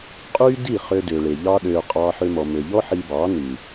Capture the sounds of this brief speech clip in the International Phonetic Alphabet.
qʼ yː˦ d i˦˨ χ ø˧ d ø˨ ɭ e˨ ʎ ɑ˧ ɗ øː˨ qʼ ɑː˧ ħ ø˧ m ɔ˨ m ø˨ ʎ ɔ˦ ħ i˧ b ɑː˨˦ n ʉ˨

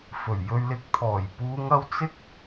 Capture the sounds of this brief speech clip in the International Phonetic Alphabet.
f ɵ˨˩ ɥ j ɵ˨ ɥ l ɪ˨˥ k̚ t̪ʰ ɔː˨˩ j p uː˨˧ ŋ ɐ˧ w t͡s ɪ˥ k̚

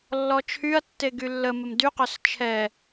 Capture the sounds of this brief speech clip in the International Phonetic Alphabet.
lː ɔ t͡ʃʰ y ɐ̯ tː e ɡ y lː ə m ə m d y q œ s t͡ʃʰ ɛ

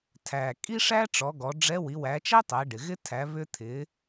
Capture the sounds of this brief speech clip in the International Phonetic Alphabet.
tʰ æ˩ kʼ i˥ ʂ æ˥ ʈ͡ʂ ɔ˩˧ ɡ ɔ˩˧ ɖ͡ʐ ɛ˧˥ w i˩˧ w æ˩˧ t͡ʃ æ˥ tˤ ɛ˩˧ ɖ ɪ˩ ɣ ɪ˥ tʰ æ˩˧ β ʏ˧ t̪ʰ ɪ˩˧

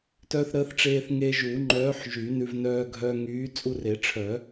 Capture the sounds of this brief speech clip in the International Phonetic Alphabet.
t œ˧ θ ɾ əː˨˥ θ ʈ͡ʂ eː˧ θ ŋ e˧ ʒ u˨˩˦ ŋ͡ǃ œː˨˥ ħ ʒ y˨˩˦ n ʉ˧ v n œː˧ ɡʱ œ˧ ŋ yː˨˥ t͡sʼ u˧ r e˨˩˦ ʈ͡ʂʰ œ˨˩˦

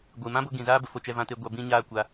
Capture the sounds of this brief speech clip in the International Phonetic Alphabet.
ɡʷ ɨ˨ m ã˦ b o˧ ɡ ĩ˨ z aː˦ b ə˨ f o˧ t͡ʃ ɛ˧ v ã˧ t e˧ ɡʷ a˧ b ĩ˦ ɲ aː˦ kʷ a˧

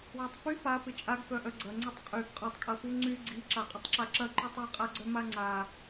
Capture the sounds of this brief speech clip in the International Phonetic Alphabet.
w ɐ tˤ f y p a p ɪ t͡ʃʼ a ɡ f œ ʔ œ ɡ͡ǀ ɐ ŋ͡ǀ ɐ tˤ qʼ y ɡ qʼ ɐ tˤ kʼ ɐ f u ŋ͡ǀ y ɡ͡ǀ i ǁ a qʼ ɪ tˤ ǁ a ǁ ɐ ǃ y tˤ i qʼ a ɡ͡ǀ œ m a ŋ͡ǀ a

